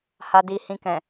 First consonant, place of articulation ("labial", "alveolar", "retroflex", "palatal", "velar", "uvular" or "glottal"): glottal